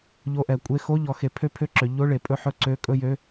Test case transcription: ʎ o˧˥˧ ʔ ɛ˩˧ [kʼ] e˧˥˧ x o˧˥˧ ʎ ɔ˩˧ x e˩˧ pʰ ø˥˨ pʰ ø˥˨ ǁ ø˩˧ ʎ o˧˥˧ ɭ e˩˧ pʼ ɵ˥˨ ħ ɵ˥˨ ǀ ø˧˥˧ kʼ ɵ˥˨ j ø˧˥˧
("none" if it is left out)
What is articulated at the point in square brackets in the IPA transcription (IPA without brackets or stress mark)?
kʷʼ